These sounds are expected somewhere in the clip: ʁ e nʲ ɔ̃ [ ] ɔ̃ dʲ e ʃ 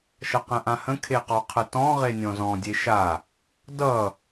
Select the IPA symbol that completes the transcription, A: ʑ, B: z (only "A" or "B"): B